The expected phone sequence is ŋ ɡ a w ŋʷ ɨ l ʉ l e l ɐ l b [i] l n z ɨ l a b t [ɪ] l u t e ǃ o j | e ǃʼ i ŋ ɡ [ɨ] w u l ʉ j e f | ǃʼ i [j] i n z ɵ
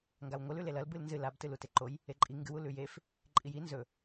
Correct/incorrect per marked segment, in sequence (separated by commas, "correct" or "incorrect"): incorrect, incorrect, correct, correct